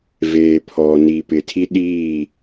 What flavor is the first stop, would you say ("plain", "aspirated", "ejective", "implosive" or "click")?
aspirated